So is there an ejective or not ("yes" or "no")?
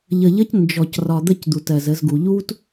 no